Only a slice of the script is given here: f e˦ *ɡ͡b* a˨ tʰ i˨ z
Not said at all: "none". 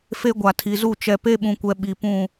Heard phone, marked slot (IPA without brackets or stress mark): ɡʷ